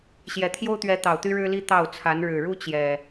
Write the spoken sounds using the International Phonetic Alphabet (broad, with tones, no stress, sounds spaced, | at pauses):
ɕ j ɛ˨˩ t̪ʰ j o˦ ʊ̯ t̪ ɥ ɛ˨˦ t̪ ɑ˨˩ ʊ̯ t̪ y˦ ɻ ɻ̩˦ l i˦ t̪ ɑ˥˨ ʊ̯ t͡sʰ a˨˦ n ɻ ɻ̩˨˩ ɻ u˦ t͡ɕ j ɛ˨˩